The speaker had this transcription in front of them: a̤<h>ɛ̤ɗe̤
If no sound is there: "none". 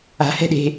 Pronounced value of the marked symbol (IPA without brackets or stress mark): h